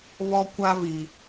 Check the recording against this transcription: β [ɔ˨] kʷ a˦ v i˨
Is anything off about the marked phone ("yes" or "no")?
yes